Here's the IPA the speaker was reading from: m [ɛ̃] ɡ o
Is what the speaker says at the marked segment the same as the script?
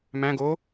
no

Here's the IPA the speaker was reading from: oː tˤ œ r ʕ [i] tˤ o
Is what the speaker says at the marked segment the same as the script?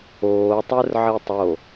yes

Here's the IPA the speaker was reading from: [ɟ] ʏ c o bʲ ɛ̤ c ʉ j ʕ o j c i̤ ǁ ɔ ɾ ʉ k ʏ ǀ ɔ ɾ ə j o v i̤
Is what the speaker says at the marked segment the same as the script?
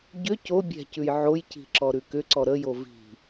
yes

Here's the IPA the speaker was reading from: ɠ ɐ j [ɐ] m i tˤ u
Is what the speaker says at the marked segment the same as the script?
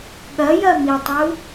yes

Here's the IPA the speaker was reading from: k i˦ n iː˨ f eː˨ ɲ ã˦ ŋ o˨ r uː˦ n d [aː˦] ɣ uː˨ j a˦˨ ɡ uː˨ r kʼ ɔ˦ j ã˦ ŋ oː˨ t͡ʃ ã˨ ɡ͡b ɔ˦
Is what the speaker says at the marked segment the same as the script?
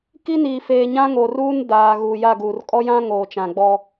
no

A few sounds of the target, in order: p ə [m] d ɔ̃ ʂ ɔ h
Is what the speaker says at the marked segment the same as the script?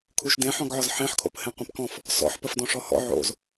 no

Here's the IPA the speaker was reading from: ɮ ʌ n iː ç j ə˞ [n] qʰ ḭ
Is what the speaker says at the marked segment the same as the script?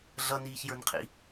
yes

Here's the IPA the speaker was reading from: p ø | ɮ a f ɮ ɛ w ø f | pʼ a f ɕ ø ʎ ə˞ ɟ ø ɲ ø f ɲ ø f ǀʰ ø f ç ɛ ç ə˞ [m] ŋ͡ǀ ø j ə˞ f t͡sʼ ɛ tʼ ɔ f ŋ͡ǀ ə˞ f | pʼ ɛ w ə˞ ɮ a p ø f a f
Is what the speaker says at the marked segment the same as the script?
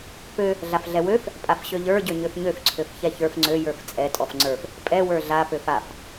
no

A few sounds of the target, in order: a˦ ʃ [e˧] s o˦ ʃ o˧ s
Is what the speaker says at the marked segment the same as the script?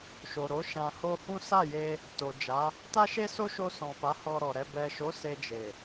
no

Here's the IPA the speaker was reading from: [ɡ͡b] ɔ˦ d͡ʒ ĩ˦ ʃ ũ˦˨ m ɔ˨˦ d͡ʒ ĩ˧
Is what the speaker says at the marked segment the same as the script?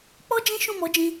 no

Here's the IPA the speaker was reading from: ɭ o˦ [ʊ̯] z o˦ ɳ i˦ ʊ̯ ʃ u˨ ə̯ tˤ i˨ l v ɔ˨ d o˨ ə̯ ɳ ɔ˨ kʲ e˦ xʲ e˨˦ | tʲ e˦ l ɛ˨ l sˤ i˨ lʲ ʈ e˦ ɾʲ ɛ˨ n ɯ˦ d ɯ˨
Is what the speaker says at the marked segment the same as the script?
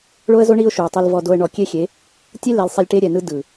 no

